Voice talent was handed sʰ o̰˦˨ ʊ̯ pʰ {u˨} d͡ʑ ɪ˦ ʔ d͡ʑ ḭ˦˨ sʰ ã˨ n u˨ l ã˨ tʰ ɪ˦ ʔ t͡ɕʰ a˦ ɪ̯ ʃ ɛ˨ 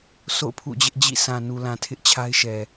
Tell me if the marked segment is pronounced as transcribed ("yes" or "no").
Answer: no